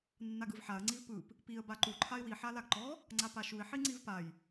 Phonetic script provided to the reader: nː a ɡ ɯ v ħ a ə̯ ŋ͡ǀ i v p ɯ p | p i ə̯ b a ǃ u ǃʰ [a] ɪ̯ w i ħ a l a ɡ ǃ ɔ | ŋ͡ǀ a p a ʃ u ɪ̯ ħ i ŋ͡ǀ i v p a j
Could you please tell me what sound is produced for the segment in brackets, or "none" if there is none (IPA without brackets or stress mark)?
a